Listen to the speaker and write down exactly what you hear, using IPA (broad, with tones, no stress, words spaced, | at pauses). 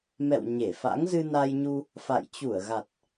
mɛ̰˧˨w ɲe˧˩fa̰˧˥ŋ zɨ˧na˧jɲu˧ | fa̰˧˨j t͡ɕu˧˩ə̯ɣa˨˩t̚